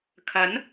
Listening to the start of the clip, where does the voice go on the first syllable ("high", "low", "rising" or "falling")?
rising